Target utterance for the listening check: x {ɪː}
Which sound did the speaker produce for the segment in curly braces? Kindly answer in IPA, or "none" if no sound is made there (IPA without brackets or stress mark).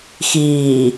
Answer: iː